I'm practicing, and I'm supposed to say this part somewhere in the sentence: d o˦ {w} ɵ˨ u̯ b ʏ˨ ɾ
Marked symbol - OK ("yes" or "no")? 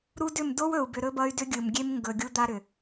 yes